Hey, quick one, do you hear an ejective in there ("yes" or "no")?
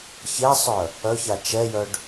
no